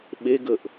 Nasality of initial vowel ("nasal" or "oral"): oral